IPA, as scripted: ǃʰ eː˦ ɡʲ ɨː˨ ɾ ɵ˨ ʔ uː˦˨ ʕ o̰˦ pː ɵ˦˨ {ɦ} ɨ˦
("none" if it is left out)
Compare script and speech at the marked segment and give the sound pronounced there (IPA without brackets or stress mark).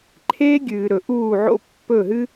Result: ɦ